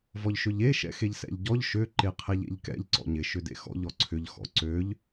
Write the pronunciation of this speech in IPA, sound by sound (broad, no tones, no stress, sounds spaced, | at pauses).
v ɔ ʎ ʃ ø ʎ e ʃ ɛ̰ x e ʎ s ɛ̰ ʎ ɟ ɔ ʎ ʃ ø ǃ e qʰ ɛ ʎ ḛ ʎ k ɛ̰ ʎ ǀ ɔ̰ ɲ ɪ ʃ ʏ d ḛ x ɔ̰ ʎ ɔ ǀʰ ʏ ʎ x ɔ̰ ǀ ø ʎ